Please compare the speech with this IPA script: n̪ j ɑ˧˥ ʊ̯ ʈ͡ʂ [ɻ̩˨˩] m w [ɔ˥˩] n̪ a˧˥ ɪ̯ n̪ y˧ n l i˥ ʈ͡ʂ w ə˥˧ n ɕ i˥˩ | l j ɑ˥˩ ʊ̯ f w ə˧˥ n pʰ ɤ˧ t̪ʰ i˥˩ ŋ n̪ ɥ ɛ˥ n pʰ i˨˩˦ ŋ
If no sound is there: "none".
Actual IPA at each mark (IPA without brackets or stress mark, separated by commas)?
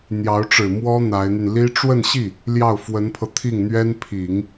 ɻ̩˨˩, ɔ˥